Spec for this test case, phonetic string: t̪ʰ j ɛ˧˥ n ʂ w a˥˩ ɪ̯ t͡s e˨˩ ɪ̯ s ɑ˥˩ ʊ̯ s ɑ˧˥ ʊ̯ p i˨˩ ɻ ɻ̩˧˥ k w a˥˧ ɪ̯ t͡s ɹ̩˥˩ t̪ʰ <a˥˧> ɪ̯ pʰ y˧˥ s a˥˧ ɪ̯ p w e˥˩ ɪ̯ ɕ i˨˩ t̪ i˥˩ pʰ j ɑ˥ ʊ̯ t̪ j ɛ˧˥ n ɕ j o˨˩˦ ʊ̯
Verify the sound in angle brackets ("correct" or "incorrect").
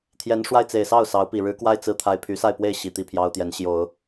incorrect